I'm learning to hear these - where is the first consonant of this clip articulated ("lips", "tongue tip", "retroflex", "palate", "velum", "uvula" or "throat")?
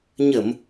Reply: palate